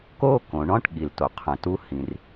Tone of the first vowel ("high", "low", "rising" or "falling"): high